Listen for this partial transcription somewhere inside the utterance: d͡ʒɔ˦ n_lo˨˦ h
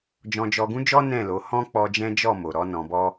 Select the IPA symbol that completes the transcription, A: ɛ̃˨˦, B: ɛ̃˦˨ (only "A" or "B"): B